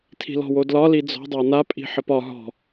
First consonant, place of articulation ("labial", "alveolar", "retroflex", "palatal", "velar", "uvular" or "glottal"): alveolar